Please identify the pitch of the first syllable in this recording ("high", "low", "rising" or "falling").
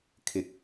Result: low